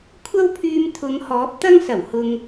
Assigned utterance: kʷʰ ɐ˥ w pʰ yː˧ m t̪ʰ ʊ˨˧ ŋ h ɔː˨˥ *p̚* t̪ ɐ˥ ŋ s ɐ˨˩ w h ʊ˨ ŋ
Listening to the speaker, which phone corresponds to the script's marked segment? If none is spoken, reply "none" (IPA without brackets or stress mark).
p̚